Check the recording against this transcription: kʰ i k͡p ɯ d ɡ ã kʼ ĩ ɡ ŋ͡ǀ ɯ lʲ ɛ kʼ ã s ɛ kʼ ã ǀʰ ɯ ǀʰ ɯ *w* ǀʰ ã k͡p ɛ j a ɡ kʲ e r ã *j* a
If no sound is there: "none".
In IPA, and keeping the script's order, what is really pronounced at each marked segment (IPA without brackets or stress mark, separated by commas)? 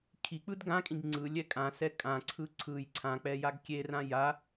j, j